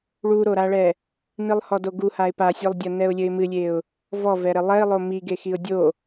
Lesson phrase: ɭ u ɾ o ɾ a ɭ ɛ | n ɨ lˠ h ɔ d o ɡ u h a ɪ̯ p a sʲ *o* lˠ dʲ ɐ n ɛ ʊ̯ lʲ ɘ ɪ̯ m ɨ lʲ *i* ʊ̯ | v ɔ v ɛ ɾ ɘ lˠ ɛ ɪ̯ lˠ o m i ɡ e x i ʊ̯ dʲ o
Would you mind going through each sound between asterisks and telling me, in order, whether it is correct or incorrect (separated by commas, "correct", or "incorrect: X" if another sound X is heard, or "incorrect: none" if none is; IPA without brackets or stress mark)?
correct, incorrect: e